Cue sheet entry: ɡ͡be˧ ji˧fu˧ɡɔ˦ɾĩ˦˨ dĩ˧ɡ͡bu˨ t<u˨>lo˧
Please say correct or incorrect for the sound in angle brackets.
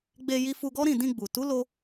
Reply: incorrect: u˨˦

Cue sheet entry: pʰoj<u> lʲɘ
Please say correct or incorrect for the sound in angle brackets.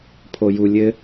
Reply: correct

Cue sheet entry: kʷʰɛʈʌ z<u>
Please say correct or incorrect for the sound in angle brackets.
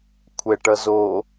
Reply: incorrect: o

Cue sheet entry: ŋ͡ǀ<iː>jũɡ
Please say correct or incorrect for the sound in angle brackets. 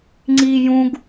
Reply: correct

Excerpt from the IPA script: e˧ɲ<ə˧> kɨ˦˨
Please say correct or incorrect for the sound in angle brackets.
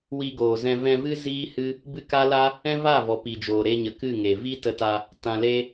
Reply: incorrect: ə˨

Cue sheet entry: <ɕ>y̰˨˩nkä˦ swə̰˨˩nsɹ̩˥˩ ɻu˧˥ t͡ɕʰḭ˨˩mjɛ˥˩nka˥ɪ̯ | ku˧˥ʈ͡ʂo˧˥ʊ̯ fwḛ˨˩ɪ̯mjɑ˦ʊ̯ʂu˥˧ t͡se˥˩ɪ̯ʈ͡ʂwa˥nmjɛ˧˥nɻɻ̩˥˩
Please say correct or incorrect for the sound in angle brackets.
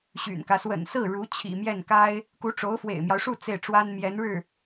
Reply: correct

